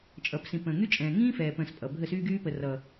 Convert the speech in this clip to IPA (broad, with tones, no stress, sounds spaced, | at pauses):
t͡ʃʼ ʌː˨ p s ĩ˨ p ə̃ː˨ ŋ y˦ t͡ʃʼ ɛ̃ː˨ ŋ ĩː˦ f ɛː˨ p ə̃ː˨ s pʼ ʌ˨ bʱ ə˦˨ s yː˦ ɡ yː˦ p ə˨ r ʌː˨